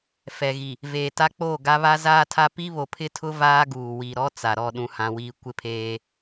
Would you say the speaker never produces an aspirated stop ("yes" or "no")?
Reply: no